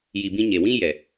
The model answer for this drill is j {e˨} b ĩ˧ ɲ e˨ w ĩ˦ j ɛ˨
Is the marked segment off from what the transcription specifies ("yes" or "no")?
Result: yes